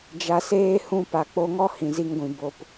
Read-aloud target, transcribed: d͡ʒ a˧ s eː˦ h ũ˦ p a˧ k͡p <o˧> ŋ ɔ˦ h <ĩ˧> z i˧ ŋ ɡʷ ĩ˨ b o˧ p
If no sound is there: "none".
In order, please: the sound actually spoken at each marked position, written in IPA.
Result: o˧, ĩ˨

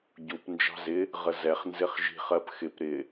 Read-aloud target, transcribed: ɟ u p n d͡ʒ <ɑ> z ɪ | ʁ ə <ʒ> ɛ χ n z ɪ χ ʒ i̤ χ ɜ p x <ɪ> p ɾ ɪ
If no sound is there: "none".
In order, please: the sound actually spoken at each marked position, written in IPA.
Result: ɑ̤, z, ɪ

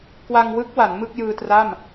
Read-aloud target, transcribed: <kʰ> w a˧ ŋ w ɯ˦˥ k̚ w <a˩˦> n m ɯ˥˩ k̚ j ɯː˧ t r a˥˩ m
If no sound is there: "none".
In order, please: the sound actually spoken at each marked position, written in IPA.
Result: k, a˩˦

